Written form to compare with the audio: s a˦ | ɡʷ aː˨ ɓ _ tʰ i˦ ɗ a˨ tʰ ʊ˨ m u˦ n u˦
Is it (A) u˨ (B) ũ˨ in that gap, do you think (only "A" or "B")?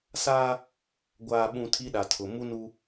B